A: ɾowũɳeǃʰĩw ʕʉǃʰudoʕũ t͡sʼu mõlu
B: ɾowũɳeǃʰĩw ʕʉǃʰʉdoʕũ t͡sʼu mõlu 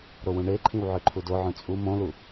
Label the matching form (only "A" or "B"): A